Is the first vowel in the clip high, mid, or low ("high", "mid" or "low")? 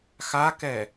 low